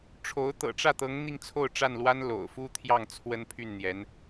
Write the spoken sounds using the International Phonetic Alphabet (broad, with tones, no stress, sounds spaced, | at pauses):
ʈ͡ʂʰ o˧˥ ʊ̯ t̪ ɤ̰˨˩ ʈ͡ʂ ä˥˩ t̪ ɤ˧˥ ŋ n̪ i˥˧ ŋ t͡sʰ o˥˧ ʊ̯ ʈ͡ʂ a˥˩ n l w a˥ n l o̰˨˩ ʊ̯ f u˥ t̪ʰ j ɑ˥˩ ŋ t͡sʰ w ə˥ n pʰ y˥˩ n n̪ j ɛ˧˥ n